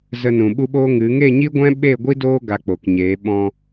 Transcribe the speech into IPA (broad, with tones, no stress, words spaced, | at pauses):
zə˧nũ˨ ɓu˦ɓo˦ŋɨ˨˦ ŋe˦˨ɲi˦ɡʷɛ̃˦ ɓe˦˨ɡʷi˦doː˦ ɡa˧k͡po˨kɲeː˨˦ ɓɔ̃˧